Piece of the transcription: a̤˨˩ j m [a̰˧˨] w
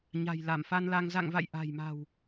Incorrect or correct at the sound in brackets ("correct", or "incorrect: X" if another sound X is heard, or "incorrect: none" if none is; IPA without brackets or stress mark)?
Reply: incorrect: a̤˨˩